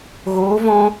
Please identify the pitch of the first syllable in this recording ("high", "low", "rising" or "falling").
rising